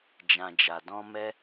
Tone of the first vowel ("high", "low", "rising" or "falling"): low